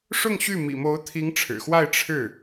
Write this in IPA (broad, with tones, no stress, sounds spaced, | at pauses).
ʂ ʊ˥˧ ŋ ɕ y˥˩ m ḭ˨˩ m o˧˥ ʊ̯ t̪ʰ i˧˥ ŋ ʈ͡ʂʰ ɻ̩˨˩ x w a˥˧ ɪ̯ ʈ͡ʂʰ ɻ̩˥˩